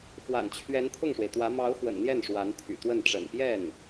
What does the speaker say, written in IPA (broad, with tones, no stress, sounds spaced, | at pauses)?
x w a̰˨˩ n t͡ɕʰ ɥ ɛ˧˥ n t̪ʰ ʊ˥˩ ŋ ʂ w e˩ ɪ̯ t̪ w ä˧˥ m ɑ˧˥ ʊ̯ x w ə̰˨˩ n n̪ j ɛ˥˩ n ʂ w a˧˥ n t̪ʰ y̰˨˩ t̪ w ə˥˩ n ʈ͡ʂ ə̰˨˩ n p j ɛ˥˩ n